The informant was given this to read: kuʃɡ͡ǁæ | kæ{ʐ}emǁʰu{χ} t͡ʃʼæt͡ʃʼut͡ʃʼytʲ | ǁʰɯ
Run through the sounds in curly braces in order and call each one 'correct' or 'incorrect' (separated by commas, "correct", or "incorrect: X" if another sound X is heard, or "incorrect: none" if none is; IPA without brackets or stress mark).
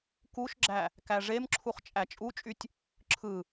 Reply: correct, correct